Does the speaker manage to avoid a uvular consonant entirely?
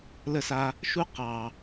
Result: no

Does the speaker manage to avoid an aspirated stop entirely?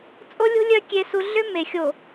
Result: yes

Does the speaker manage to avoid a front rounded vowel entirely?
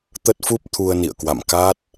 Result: yes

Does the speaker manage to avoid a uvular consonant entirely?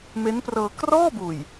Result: yes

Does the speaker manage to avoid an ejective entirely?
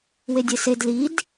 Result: yes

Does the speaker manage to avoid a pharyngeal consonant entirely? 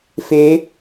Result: yes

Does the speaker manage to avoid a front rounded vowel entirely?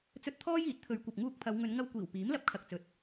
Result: yes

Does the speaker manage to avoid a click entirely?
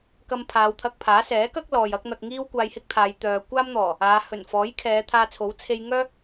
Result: yes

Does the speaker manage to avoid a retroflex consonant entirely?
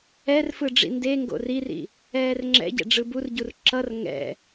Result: no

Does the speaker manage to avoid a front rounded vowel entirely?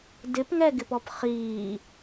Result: yes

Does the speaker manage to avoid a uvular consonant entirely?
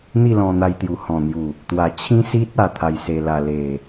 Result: yes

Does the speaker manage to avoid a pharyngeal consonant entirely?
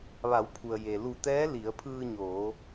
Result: yes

